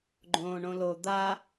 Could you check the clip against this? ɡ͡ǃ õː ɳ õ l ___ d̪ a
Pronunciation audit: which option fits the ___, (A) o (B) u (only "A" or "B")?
A